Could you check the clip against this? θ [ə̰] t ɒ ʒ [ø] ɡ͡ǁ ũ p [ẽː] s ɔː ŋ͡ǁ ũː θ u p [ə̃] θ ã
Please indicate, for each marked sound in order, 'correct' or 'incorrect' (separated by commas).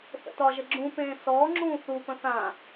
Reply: correct, incorrect, correct, correct